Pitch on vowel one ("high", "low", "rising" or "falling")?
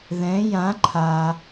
rising